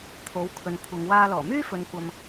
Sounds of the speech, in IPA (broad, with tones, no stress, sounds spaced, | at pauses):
t̪ʰ o˨˥ w kʰ ɵ˨ n kʷʰ ɐ˨˧ ŋ w aː˧ l ɔː˨˩ m yː˥ f ɵ˨ n kʷ ɐ˨ m